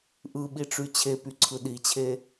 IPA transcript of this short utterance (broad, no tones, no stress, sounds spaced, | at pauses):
ʔ ɯ ɓ i ʈ͡ʂ y t͡ɕʰ e p y ǀʰ ɯ ɗ i t͡ɕʰ e